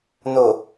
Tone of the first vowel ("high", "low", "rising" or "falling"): low